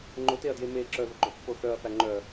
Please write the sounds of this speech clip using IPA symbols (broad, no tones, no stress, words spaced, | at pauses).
ŋ͡ǃʊteɐ̯dje me ǁœðʊɡ͡ǃœpːo θœɐ̯fæ ŋ͡ǃœ